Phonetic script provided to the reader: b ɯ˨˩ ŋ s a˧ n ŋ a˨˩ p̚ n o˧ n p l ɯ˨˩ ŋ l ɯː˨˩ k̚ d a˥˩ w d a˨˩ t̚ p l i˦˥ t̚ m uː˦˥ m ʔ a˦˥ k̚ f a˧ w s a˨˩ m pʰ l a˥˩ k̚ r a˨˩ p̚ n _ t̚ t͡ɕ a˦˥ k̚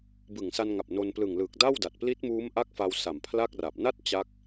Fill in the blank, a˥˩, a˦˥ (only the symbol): a˦˥